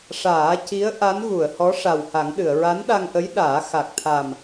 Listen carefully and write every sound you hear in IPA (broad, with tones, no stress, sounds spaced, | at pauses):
ʂ aː˨˩˦ c i˧˥ ə̯ ʔ a˧˥ n ɣ u˨˩˨ ə̯ h ɔ˧˥ ʂ a˨˩ w h a˨˩˦ ŋ ɗ ɨ˨˩˨ ə̯ ɹ a˧˥ n ɗ a˧ ŋ ʔ ə˧˥ j ɗ aː˨˩˦ x a˨˩ k̚ t̪ʰ a˨˩ m